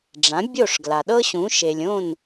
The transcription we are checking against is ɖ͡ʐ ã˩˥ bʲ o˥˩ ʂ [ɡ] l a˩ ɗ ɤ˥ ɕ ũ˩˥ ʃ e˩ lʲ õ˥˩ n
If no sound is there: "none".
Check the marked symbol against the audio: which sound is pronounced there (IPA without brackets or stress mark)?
ɡ